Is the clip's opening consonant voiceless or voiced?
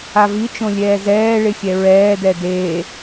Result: voiced